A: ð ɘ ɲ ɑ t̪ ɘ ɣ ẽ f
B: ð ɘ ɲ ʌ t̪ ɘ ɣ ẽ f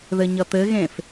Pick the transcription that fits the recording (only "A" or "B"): B